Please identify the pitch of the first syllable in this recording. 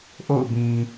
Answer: falling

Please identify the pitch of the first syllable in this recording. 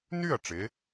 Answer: falling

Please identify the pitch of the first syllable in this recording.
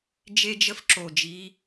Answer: high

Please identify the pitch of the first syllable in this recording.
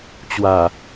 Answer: low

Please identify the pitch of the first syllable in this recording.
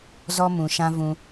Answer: high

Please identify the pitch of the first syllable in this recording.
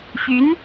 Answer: rising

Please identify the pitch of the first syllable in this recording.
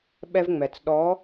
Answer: high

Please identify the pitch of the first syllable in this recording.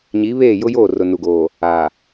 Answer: rising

